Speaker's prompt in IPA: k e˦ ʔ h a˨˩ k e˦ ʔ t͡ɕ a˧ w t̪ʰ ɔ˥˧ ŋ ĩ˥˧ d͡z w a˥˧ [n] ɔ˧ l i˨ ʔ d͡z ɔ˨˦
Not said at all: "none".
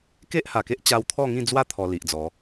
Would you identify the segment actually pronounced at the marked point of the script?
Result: t̪ʰ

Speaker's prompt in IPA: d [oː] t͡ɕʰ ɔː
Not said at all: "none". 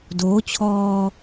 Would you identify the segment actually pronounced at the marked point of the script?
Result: oː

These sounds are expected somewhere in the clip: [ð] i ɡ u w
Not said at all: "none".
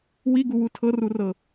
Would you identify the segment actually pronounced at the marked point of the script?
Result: w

